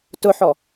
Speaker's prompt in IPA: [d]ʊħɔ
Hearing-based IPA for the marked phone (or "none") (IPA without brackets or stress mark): t